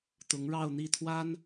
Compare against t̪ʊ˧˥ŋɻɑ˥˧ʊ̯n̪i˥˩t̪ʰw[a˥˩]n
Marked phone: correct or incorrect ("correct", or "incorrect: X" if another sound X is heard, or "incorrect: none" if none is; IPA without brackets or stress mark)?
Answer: incorrect: a˥